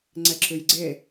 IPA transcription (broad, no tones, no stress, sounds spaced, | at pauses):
ŋ͡ǀ ɛ ǁ ʉ j ɡ͡ǀ e